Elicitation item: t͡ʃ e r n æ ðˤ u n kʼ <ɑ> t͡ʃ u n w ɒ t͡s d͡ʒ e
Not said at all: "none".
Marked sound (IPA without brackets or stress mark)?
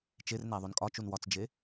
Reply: ɒ